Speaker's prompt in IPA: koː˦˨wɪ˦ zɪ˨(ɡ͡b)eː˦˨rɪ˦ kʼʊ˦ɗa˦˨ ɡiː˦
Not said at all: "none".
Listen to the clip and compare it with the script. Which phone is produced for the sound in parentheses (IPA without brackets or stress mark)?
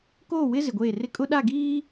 ɡʷ